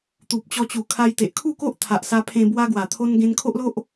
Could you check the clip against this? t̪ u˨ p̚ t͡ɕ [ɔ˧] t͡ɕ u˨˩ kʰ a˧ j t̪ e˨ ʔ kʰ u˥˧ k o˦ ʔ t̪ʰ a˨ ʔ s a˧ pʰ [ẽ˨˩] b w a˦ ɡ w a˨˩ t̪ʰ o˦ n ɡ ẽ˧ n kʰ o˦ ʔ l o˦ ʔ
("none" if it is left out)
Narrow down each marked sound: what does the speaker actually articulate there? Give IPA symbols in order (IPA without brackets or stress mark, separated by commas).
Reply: ɔ˧, ẽ˧